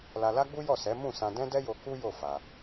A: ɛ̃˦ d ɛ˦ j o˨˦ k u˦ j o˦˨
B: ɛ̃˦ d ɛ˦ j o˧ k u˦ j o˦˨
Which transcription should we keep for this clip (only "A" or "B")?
B